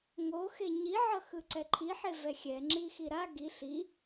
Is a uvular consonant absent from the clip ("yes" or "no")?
yes